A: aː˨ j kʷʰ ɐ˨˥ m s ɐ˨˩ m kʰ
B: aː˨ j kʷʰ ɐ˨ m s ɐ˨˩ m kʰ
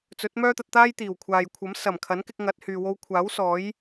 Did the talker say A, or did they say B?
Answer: A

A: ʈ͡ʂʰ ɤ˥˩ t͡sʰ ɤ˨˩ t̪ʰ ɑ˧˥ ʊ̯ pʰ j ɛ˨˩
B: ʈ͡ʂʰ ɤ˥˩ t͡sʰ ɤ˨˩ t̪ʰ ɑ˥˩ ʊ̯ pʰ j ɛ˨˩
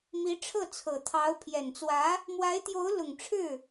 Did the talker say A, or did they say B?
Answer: A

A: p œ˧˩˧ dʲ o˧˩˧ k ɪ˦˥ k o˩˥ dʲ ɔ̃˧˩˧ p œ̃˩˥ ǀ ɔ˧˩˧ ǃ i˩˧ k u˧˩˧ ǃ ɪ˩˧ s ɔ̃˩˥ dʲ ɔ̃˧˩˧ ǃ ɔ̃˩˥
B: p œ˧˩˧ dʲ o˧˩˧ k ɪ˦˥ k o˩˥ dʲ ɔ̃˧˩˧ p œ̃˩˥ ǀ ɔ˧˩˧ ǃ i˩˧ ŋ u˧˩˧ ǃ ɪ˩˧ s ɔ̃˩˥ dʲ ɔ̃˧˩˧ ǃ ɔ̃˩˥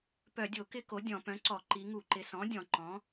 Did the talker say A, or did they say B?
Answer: B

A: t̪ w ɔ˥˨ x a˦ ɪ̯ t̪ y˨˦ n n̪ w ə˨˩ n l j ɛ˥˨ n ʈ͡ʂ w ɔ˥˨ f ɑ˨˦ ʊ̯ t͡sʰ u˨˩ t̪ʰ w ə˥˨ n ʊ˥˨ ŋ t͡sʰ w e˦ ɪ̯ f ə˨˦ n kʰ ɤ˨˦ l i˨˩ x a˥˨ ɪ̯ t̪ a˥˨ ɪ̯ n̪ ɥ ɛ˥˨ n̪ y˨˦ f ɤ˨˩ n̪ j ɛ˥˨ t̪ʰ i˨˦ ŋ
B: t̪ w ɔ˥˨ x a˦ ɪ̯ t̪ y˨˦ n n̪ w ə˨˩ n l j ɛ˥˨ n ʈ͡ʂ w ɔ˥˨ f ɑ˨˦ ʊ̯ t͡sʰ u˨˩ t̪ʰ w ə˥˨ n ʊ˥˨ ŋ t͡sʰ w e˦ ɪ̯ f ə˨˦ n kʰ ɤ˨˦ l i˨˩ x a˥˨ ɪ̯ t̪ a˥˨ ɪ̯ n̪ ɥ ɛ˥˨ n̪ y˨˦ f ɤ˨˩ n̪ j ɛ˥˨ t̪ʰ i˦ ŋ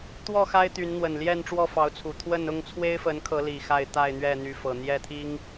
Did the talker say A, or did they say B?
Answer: B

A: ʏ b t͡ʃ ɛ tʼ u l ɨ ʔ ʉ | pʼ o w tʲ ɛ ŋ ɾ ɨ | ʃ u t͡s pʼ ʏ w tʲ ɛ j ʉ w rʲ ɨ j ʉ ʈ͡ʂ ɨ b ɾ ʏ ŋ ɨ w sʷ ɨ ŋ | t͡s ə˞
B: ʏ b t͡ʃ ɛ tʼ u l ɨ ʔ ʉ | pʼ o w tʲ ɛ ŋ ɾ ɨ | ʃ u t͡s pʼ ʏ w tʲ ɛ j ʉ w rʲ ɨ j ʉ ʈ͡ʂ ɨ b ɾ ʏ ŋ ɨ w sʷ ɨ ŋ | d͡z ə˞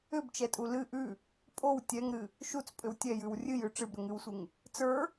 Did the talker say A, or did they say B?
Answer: A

